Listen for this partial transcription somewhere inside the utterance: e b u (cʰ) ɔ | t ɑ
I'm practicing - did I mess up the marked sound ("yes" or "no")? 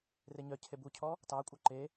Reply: no